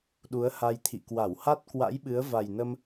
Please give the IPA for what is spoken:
ɗu˨˦ə̯ha˧jt̪ʰḭ˧˨ kwa˧˩wha˦˥t̚kwa̰˧˥jɓɨ˨˦ə̯ va˨˩jnə˧m

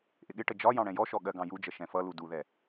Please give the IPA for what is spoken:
ʔɪɠɪʈə d͡ʒɒ jɑ̃ɽɛ̃jɔʃɔ ɠɜɡɑ̃jud͡ʒə ʃɛ̃fʌlu duðɛ

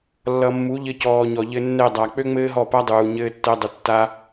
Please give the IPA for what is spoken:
lːʌ˨mːu˨˦ ʎɘ˧cɔː˨ɲɔ˨ ʎɘ˧nːɛ˦˨ dˤa˨ k͡pø˦ŋ͡mɘː˦ɦɔ˦˨pa˦ dˤuː˨ ɲɘː˦tːɜ˦ dˤɘ˧tːa˦

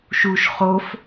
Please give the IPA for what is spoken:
ʃuʃ χof

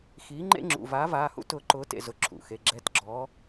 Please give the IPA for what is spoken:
xiː˩˥ŋ͡ǃḛ˦ŋ͡ǁṵ˩˧˩ vaː˩˥vaː˩˧˩hṵ˦ tʊː˩˥ǃʊː˩˥ tḛ˩˧˩zʊ˩˧˩ ǁʰṵ˩˧˩xe˩˧˩ ɡ͡ǁɛ˩˥t ɡ͡ǁɔː˩˥

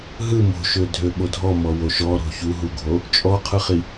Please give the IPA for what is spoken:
ɦɯ mo̤ʃø dʱøɓodʱɔ mɔwoʃɔɾo̤ çuɦuɡʱo | t͡ʃʼɔqʰɯχi

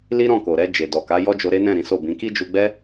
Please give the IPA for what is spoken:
li˦ɾɔ̃˦˨ko˨ɾɛ˧ d͡ʒe˨dɔ˨ka˨˦ jɔ˦d͡ʒo˧ɾe˦nɛ̃˦˨ ɾĩ˨˦so˦˨bĩ˨˦ ki˦d͡ʒu˧ɡ͡bɛ˦

